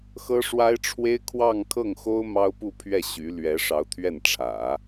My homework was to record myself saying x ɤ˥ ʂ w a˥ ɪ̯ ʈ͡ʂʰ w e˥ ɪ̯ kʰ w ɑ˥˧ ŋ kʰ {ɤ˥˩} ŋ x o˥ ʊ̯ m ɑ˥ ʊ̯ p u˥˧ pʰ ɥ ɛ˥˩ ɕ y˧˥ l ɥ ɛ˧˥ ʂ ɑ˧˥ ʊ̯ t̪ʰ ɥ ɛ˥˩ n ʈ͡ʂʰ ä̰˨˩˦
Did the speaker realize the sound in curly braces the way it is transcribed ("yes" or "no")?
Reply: yes